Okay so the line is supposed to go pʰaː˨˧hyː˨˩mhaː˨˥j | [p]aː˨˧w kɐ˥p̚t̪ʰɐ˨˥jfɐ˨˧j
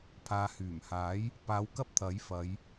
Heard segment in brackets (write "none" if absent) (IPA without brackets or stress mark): p